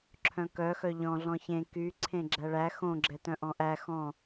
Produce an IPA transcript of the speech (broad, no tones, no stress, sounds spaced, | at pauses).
ǁʰ œ̃ k œ x œ ʎ ɔ̃ ɮ ɔ̃ ç ẽ k y ǀʰ ẽ ɡ͡ǁ æ ɭ æ x õ ɡ͡ǁ ɛ t œ̃ ʔ ɔ̃ ʔ æ x ɔ̃